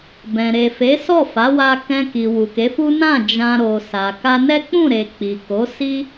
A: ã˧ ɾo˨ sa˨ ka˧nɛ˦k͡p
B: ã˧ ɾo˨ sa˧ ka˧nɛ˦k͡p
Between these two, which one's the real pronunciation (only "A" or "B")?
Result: A